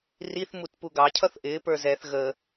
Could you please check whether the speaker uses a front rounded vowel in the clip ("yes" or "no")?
no